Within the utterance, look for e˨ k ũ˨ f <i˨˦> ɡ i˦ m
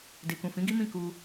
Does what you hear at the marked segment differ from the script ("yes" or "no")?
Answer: yes